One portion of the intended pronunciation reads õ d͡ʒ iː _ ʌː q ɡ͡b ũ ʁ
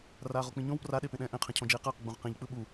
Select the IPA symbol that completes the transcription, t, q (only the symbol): q